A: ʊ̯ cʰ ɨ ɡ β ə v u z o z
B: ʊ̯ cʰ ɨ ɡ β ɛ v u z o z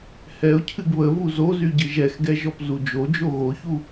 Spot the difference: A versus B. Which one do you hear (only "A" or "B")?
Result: A